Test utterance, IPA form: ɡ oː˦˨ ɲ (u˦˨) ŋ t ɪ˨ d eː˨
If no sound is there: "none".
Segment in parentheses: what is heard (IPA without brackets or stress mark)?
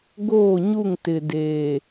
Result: u˦˨